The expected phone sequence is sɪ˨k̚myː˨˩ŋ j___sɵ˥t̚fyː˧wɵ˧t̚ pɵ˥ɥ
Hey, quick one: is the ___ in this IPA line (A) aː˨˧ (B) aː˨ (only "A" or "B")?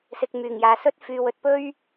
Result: A